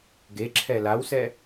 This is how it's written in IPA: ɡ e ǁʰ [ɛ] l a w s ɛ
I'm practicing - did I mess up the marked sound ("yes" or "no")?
no